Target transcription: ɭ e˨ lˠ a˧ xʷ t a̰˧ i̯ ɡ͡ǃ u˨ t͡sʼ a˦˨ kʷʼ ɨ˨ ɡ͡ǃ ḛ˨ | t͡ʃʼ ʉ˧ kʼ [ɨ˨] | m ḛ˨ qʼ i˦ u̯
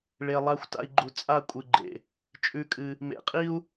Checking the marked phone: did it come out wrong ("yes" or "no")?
yes